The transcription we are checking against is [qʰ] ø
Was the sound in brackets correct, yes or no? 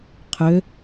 yes